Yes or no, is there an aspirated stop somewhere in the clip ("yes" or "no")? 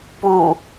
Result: no